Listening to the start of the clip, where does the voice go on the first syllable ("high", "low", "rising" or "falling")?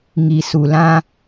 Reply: low